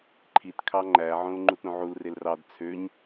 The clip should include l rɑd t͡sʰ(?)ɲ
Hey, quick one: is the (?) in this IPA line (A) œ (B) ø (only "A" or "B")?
B